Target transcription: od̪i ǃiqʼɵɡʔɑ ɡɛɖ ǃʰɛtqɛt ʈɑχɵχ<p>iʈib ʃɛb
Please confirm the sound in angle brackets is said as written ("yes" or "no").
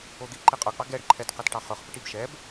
yes